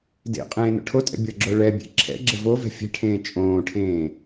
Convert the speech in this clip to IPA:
dḛ qʼẽːno̰ʈʰotʼɛ̰ bʲʌɡ͡ǁoɭɛbʲḛ ǁʰɛ̰ɡ͡ǁɘ vovɛ̤ fʲɛ̤ʈʰẽː t͡ʃʼõːʈʰẽː

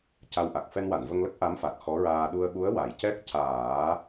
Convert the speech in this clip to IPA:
ca˧wʔa˨˩k̚ fɛ˧nwa˨˩˨nvə˧ŋlə˦˥k̚ ʔa˧˥mfa˨˩t̚ xɔ˧˥ɹaː˧ ɗu˧ə̯ɓu˧˥ə̯wa˨˩˨jcɛ˦˥k̚ caː˨˩˦

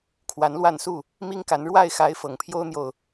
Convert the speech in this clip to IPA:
kʰwa˨˦nlwa˥˨nsu˥˨ | mi˦ŋka˨˦n ɻwa˥˨ɪ̯xa˨˦ɪ̯ fɤ˨˩ŋpʰjo˦ʊ̯n̪jo˨ʊ̯

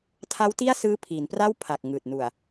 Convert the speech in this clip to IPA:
tʰa˦˥wti˥˩a̯ sɯː˦˥pʰiː˩˦npra˥˩w pʰa˨˩k̚ ŋɯː˨˩t̚nu˨˩a̯

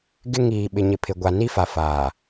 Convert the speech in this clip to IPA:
ɡɪ˦ ŋiː˨ɓɪ˨ɲɪ˨ pʰɪ˨ ɡʷa˨ ni˦fa˨faː˨

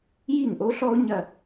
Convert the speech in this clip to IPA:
ji˥˩ŋʔo˥ɬɔ˥ʊ̯ ɲɐ˥˧

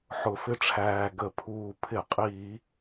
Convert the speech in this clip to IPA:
ħʊ˧˩˧fɪ˦ʈ͡ʂʰæː˨˩ ɡə˧˩˧pʰuː˨˩ pʰɪ˧˩˧qʼiː˧˩˧

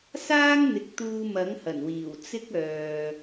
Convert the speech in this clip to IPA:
saː˥ŋn̪ɪ˨˥k̚ t̪uː˧mɐ˨˥ŋhɐ˨˩nwiː˨˩w t͡sɪ˥k̚ œː˨

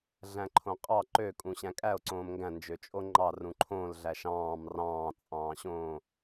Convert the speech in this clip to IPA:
ɮæ̃ǃʰõqʼɑ ǃøkʼũ ɕæ̃kʼæo̯ǀõːm ŋɡæ̃ nd͡ʒøt͡ʃʼoŋ͡ǃɑ rũǃʰõl ɮæʃɑ̃ːm rɑ̃ːt͡sʼɑ̃ːɕõː

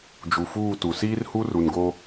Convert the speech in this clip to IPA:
d͡ʒu˨fuː˦˨tu˨ siː˦rhu˦ru˨nɡo˦

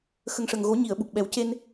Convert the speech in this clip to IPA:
xə˨˩ŋʂə˨˩ŋɣo˨˩˦ ɲi˨˩˨ə̯ɓu˨˩k̚ɓɛ˨˩˦wce˧n

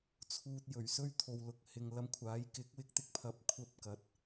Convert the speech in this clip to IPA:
t͡sʰuː˧t̚jɵ˨˩ɥsɵ˥ɥ t̪ʰo˨wlʊ˨k̚hɪ˨ŋ lɐ˧mkʷʰaː˨˥j kɪ˨˥k̚wɪ˧k̚t̪ɪ˧k̚pʰɐ˨p̚ kʷʰɐ˥p̚kɐ˨˥t̚

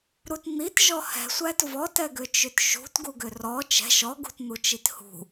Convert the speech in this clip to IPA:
ɾut n̪itʒɔ hɛ̤sʷæt vɔtɛɡʏt͡ʃʏt ʃṳtɡuɡʏ rɔ t͡ʃɛ̤ ʃɔɡṳtn̪ut͡ʃit hṳ

